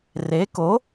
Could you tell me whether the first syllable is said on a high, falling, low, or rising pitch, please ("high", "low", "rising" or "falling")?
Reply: rising